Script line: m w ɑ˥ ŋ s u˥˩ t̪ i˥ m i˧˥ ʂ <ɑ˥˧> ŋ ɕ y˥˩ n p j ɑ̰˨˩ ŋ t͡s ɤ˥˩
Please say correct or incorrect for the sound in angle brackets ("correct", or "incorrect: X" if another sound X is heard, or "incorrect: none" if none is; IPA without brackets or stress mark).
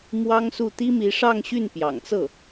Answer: correct